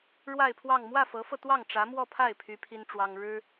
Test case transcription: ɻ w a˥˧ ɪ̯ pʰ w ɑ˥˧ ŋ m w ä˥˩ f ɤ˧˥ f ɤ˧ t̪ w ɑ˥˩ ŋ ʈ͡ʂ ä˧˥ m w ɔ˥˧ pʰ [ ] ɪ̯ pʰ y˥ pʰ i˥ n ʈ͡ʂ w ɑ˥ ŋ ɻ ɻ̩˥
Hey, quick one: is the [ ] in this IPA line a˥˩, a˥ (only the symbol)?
a˥˩